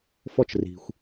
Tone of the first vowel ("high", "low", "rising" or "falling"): high